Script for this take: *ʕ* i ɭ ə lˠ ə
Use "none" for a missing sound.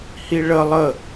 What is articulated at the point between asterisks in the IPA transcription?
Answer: h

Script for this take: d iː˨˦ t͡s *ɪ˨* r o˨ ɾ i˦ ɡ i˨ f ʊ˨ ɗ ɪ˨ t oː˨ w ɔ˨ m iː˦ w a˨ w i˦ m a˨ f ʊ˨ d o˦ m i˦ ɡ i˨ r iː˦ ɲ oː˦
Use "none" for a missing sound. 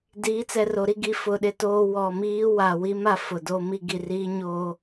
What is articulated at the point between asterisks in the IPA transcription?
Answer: ɛ˨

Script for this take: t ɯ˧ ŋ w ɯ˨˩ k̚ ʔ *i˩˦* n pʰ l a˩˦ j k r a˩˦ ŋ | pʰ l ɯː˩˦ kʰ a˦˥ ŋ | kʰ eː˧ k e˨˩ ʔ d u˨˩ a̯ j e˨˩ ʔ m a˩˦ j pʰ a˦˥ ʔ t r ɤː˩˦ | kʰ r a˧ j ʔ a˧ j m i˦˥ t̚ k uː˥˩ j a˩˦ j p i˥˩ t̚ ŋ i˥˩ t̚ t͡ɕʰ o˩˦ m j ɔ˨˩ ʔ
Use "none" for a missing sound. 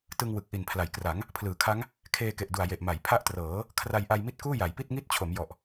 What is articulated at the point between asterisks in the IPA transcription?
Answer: i˨˩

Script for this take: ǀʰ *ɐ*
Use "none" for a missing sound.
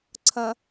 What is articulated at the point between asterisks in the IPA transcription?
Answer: ɐ̃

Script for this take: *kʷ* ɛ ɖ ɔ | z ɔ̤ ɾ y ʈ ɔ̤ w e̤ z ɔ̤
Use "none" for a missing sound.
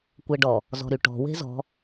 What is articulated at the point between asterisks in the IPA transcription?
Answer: kʷ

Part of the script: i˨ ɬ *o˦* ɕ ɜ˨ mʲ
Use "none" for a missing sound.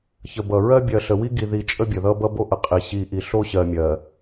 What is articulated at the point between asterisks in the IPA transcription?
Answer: o˦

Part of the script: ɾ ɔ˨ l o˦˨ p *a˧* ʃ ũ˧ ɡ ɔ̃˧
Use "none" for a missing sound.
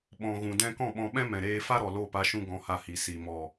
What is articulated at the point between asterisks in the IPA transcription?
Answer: a˧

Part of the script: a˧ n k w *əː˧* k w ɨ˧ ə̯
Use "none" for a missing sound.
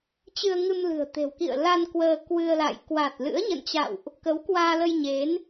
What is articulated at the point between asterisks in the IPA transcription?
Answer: əː˧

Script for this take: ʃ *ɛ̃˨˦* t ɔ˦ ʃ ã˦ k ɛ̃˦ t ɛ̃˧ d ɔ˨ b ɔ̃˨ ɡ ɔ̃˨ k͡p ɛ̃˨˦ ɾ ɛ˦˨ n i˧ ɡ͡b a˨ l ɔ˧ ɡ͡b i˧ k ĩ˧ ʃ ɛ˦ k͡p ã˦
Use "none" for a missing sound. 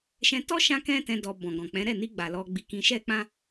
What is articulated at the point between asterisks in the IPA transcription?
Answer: ɛ̃˧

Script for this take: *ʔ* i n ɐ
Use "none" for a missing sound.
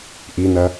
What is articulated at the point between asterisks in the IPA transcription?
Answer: ʔ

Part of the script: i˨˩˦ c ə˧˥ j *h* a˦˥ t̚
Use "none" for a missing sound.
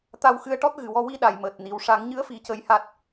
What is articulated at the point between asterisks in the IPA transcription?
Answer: h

